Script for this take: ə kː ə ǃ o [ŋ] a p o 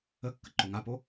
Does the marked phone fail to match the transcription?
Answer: no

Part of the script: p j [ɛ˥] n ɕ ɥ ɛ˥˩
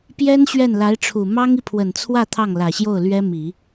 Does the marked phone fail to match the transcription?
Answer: no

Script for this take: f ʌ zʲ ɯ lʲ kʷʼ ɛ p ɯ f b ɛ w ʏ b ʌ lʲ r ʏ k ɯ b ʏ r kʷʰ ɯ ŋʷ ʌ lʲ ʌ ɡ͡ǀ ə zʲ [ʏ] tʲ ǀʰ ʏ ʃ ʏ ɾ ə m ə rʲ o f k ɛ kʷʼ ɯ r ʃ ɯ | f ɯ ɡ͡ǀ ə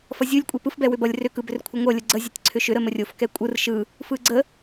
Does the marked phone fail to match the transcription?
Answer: yes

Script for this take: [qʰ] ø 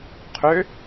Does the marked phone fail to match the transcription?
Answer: no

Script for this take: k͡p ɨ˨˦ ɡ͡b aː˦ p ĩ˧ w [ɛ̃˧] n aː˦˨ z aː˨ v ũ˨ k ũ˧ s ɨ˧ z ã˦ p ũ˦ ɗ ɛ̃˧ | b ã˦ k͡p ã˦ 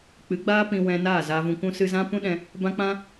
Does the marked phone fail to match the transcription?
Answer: no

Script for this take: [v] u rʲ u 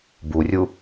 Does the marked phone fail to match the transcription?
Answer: yes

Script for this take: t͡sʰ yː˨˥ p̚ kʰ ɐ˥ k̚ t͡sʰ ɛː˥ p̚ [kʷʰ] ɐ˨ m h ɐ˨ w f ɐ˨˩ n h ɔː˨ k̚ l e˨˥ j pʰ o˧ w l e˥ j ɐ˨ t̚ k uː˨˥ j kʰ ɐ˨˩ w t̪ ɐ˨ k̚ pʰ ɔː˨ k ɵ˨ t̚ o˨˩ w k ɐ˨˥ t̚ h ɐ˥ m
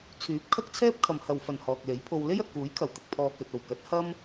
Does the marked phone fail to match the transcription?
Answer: yes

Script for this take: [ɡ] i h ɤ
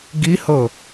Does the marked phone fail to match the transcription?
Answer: no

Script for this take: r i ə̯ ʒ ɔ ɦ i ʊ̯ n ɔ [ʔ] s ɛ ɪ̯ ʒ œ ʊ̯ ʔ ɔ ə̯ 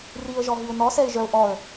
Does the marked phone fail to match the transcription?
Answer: yes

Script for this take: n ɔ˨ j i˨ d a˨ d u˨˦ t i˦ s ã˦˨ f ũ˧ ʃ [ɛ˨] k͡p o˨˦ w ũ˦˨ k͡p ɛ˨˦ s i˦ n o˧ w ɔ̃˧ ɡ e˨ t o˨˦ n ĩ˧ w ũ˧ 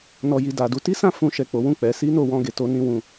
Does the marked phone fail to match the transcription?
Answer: no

